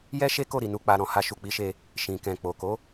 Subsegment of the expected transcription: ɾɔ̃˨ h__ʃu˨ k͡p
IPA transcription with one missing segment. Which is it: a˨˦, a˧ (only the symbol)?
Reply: a˧